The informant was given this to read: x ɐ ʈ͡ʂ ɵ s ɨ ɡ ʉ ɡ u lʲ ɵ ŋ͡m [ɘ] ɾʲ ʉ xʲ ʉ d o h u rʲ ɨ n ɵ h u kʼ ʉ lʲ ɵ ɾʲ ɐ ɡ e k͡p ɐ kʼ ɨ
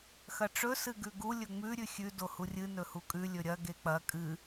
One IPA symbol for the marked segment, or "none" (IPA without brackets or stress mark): ʉ